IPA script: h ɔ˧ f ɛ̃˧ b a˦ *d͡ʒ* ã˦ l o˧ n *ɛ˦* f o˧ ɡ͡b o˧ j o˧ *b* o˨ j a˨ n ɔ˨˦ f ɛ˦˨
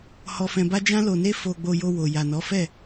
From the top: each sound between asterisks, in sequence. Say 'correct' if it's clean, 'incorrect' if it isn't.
correct, incorrect, incorrect

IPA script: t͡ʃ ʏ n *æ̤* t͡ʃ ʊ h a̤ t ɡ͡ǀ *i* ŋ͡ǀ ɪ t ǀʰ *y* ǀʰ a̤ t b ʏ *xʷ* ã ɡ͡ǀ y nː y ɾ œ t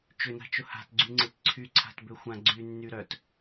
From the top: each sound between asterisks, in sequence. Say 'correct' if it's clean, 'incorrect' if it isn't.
incorrect, incorrect, correct, correct

